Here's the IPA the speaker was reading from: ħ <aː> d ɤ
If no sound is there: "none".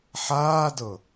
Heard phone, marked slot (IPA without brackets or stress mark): aː